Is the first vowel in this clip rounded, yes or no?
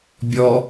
yes